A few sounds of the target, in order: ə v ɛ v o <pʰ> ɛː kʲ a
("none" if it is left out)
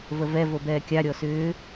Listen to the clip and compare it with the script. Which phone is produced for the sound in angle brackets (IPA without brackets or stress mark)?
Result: b